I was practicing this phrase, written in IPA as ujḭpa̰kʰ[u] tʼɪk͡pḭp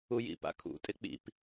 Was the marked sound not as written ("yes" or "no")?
yes